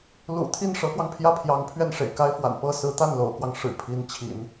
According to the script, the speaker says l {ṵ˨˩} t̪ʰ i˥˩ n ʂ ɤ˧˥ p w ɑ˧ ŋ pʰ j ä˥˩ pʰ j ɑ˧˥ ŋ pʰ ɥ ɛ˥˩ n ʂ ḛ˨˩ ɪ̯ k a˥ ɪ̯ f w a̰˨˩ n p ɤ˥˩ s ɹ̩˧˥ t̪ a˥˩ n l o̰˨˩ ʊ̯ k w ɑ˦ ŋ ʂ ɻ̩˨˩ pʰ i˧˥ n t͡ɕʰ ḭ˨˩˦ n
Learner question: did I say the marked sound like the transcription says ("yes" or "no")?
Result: yes